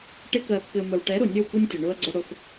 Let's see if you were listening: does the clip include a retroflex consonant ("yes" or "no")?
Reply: yes